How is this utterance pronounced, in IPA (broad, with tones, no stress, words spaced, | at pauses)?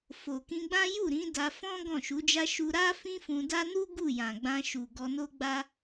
fo˨kĩ˧ɡ͡bã˦ ju˦˨ɾĩ˨˦ da˧fɔ̃˦ ɡɔ̃˦˨ʃu˨˦d͡ʒa˦ ʃu˧ɾa˦ fĩ˦fũ˧da˦ nu˦ ɡu˦˨jã˨ɡ͡bã˧ ʃu˨ ɡɔ˧no˦ɡ͡ba˦